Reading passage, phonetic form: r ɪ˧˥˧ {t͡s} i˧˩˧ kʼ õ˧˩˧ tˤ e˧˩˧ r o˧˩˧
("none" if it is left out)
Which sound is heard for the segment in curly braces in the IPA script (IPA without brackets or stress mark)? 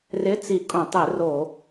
t͡s